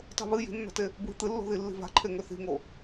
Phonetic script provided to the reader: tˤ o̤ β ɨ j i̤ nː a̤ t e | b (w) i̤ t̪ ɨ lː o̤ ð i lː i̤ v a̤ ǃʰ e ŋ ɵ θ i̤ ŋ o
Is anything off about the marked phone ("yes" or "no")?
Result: no